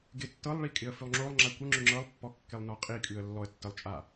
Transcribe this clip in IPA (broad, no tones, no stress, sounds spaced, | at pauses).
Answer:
ɡ ɪ tː ɤ lˠ ɭ i kʼ ɪ ə̯ f ʉ lˠ ŋ͡ǁ o lˠ ŋ͡ǁ a kʷ ə ŋ͡ǁ ʉ ŋ͡ǁ ɤ lˠ pː ɔ kː ɪ lˠ n ɔ qʼ i kʼ ʉ ə̯ lː ɔ ə̯ tː ə lˠ t͡ʃʼ a